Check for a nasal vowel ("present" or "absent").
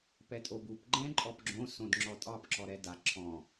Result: present